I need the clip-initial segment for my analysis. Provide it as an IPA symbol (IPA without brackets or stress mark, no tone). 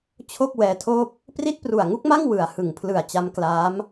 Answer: t͡ɕʰ